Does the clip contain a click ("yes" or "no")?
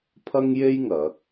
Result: no